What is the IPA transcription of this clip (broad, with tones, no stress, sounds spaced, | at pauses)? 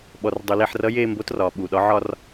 ɓ ɔ˩ r dˤ u˩ l e˧˩ ħ r ʌ˧˥ j eː˥˧ m b o˧˥ t r ɒː˩ ɓ u˩ ɗ ɒ˩˥ ʕ ɒ˥˧ r